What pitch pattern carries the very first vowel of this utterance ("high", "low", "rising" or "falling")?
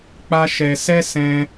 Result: high